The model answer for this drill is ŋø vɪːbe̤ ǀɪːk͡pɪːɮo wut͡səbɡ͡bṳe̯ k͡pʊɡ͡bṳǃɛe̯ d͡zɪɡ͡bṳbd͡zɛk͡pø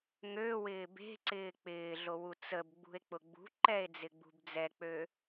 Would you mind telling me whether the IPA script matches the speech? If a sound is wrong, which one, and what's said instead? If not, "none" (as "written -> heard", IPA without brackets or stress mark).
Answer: v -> w